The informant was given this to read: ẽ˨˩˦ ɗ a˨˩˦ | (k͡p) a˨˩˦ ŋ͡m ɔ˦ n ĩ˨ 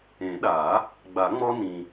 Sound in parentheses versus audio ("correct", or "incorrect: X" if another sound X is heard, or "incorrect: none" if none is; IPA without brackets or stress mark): incorrect: ɡ͡b